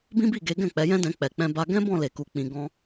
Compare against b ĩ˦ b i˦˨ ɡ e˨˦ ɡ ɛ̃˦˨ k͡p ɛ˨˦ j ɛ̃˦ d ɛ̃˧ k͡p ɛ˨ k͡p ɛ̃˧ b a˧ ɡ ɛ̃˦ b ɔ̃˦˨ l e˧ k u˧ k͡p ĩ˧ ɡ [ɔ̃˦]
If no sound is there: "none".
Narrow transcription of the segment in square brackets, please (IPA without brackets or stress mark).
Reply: ɔ̃˦